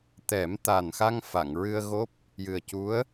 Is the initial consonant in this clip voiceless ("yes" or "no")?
yes